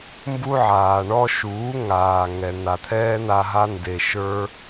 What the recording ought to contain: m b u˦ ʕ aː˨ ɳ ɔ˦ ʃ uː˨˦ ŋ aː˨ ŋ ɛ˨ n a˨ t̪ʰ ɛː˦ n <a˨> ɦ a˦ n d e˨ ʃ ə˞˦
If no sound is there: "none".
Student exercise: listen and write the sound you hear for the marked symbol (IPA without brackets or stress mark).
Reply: a˧